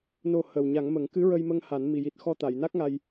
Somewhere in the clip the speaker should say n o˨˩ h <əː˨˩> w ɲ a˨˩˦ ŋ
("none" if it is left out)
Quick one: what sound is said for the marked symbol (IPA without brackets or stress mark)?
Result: əː˨˩